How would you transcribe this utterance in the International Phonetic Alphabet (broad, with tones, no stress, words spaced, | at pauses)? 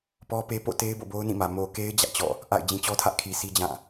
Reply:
pɔ˦pe˦ po̰˦˨te˦ɪ̯ bo̰˦˨bo˦ʊ̯nĩ˦˨mä˨ mo˨ke˦ɪ̯ d͡ʑä̰˦˨t͡ɕɔ̰˦˨ | ʔa̰˦˨ɪ̯ d͡ʑĩ˨t͡ɕɔ˦tʰä˦ʔ kʰi˨sʰi˦ d͡ʑã˦˨